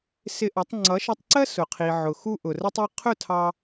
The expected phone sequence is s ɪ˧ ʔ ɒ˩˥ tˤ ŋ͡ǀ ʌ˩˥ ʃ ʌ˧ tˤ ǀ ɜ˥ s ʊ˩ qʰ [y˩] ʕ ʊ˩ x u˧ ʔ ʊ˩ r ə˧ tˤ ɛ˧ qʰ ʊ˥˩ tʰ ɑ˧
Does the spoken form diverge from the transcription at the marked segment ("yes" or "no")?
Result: yes